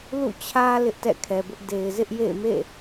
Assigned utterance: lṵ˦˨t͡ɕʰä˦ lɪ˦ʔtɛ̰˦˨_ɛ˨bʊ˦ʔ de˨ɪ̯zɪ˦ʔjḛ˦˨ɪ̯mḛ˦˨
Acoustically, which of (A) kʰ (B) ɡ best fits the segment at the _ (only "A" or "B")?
A